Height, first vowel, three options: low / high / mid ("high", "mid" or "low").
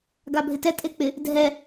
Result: low